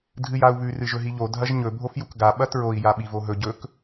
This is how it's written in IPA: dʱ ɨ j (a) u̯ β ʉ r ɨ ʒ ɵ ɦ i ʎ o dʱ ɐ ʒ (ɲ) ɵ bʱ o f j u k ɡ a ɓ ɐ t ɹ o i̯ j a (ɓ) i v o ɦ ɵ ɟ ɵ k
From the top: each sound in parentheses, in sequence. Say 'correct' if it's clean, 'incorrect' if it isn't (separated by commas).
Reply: correct, correct, correct